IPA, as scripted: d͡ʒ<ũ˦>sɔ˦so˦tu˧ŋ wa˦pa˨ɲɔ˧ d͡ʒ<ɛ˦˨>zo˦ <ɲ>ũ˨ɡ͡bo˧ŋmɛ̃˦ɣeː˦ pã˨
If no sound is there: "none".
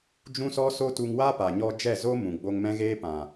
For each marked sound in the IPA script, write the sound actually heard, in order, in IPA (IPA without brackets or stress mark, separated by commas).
ũ˦, ɛ˦˨, m